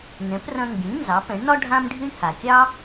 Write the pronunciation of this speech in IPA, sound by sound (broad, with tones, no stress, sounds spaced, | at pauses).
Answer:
n ɛ̃˩˥ p r ɐ̃˧ ŋ ɡ ĩ˩˥ n z ɑ˩˥ p ɛ̃˩˥ ɳ n ɒ˥ ɖʱ ã˥ m ɖʱ i˥ ɳ h a˩ kʲ ɑ˥